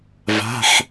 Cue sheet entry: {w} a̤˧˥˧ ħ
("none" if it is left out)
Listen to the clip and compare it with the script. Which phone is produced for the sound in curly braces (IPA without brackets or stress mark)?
v